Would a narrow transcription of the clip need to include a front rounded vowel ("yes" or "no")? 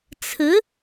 no